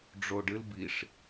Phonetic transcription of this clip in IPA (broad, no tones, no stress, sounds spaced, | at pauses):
ɖ͡ʐ o ɖ ɨ l b i ʂ